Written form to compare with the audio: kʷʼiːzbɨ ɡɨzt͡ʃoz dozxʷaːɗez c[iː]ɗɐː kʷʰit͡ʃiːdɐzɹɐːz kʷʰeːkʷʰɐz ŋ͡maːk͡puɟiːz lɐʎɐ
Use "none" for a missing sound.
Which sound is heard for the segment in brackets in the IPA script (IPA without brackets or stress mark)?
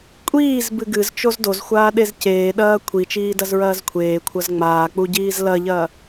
eː